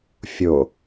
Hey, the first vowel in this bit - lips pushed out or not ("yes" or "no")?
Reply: yes